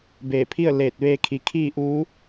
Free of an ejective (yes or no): yes